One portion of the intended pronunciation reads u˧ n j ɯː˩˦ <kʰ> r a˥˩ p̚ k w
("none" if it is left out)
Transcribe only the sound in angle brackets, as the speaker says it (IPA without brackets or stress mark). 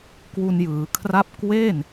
kʰ